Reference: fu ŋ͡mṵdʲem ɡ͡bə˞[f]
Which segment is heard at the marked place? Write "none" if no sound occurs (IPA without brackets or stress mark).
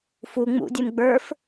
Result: f